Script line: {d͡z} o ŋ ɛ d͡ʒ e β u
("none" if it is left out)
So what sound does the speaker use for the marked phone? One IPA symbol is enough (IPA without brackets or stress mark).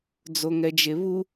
d͡z